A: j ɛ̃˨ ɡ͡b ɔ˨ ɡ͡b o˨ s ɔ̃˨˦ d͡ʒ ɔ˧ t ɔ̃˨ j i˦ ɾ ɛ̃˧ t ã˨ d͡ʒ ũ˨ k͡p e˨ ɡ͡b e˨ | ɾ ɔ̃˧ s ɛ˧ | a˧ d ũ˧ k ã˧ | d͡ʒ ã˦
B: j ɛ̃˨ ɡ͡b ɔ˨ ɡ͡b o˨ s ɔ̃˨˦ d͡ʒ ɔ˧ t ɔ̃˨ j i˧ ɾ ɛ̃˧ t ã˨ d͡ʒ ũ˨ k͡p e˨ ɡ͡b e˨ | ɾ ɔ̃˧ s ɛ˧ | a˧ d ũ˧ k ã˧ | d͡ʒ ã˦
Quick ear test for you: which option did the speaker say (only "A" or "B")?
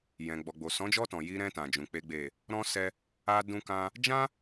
B